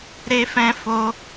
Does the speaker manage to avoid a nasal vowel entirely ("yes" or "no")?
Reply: no